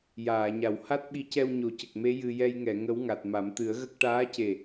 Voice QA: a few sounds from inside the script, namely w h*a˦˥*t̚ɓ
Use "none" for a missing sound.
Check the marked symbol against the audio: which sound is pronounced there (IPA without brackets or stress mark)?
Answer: a˦˥